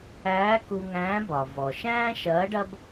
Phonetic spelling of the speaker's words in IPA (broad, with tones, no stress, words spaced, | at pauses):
æː˧˥ku˧ŋæ̃ː˧˥bɒ˩ vɔ˩ʃæ̃ː˥ ʃɐː˧˥ɖɐ˥b